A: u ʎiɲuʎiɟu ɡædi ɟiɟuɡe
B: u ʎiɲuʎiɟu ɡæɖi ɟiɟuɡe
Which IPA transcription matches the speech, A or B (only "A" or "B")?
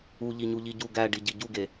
B